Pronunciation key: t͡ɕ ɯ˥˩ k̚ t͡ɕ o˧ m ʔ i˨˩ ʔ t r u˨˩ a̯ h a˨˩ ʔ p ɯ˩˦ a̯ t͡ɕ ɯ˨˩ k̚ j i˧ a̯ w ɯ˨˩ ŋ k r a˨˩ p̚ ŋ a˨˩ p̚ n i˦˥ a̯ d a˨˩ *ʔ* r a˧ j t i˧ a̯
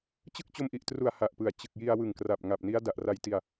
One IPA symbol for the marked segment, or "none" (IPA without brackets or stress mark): ʔ